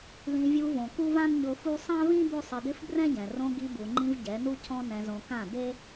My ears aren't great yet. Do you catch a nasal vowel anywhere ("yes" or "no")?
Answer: yes